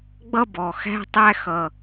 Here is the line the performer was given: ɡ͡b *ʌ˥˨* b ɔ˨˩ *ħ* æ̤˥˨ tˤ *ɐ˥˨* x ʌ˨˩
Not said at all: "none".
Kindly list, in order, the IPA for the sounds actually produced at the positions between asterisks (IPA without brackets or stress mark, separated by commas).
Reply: ʌ˥˨, x, æ˥˨